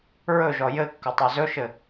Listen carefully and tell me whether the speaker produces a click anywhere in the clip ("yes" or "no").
no